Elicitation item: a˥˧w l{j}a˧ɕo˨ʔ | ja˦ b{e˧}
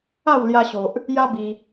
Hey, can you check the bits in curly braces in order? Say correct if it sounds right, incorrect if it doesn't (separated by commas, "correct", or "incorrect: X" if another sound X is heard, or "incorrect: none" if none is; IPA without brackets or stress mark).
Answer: correct, incorrect: i˧